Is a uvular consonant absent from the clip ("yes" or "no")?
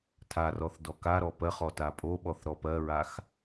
no